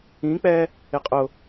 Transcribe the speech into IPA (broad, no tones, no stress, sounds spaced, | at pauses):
ĩ k͡p ɛ | ɪ qʼ ʊ